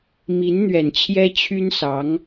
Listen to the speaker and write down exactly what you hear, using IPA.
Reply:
m i˧˥ n n̪ ɥ ɛ˨˩ n t͡ɕʰ j ɛ˥ t͡ɕʰ y˥ n s ɑ˧˥ ŋ

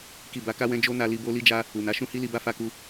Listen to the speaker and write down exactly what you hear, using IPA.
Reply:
k i˨ b a˨˦ k a˦ w ɛ̃˦ d͡ʒ o˦ n a˧ l i˧ b o˦ l i˦ d͡ʒ a˦ | u˨ n a˨˦ ʃ ũ˦ h i˦ l i˧ b a˦ f a˧ k u˧

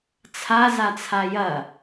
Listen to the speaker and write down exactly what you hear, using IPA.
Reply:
t͡sʰ a z a t͡sʰ a j ɐ

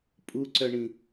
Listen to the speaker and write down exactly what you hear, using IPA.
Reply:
pʼ u ǀ œ ɳ ĩ

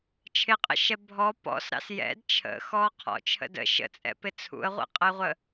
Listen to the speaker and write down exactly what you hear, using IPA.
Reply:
t͡ʃʰ ɪ qʼ ə̰ ʃ ɛ bʱ ɔ p ɔ̰ s ɾ ɑ̰ s j ɛ̰ d t͡ʃʰ ə̰ x ɔ qʰ ɔ̰ t͡ʃʰ ə̰ d ə̰ ʃ ə̰ t͡sʼ ɛ̰ p ɪ t͡sʰ ṵ ə̯ ʁʷ ɛ̰ qʼ ə ɪ̯ ʁʷ ə

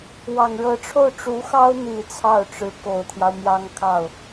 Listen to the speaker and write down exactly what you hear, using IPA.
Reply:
w ɑ˨˩ ŋ ɻ ɤ˧˥ ʈ͡ʂʰ o˥˩ ʊ̯ ʈ͡ʂ u˧˥ x ɑ˥ ʊ̯ n̪ i˨˩ t͡sʰ ɑ˥˩ ʊ̯ ʈ͡ʂ ɻ̩˧˥ k o˨˩ ʊ̯ t̪ʰ j ɑ˦ ʊ̯ m j ɑ˥ ŋ kʰ ɑ˥˩ ʊ̯

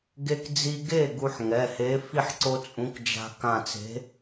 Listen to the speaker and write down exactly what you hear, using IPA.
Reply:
ɡ e˧ k d͡z i˧ ɡ e˥˩ ɡ u˧ ħ ŋ ɛ˩˧˩ h e˨˥ f i˥˩ ħ ǀ o˧ t͡sʼ ũ˨˥ k d͡ʒ a̤˧ k ã˧˩ t͡s e̤˨˥

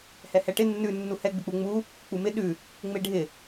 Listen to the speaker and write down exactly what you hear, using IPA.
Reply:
h ɛ h ɛ ʈ ɪ nː ʉ nː u h ɛ ɡ͡b ɪ k͡p u ŋ͡m u | k͡p u m ɪ ɗ ʉ | ŋ͡m e ɖʱ ɪ

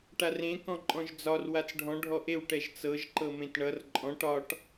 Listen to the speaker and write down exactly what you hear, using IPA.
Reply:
ʈ a r ẽ k ɔ̃ ǃʼ ɔ̃ ʒ d͡z ɒ r w a t͡s ɖʱ ɔ̃ ɖʱ ɔ ʔ e w ʈ ɛ ʒ t͡s ɤ ʒ ǃ ɤ m ẽ t ɳ ʌ r ǃʼ ɔ̃ ʈ ɒ ʈ

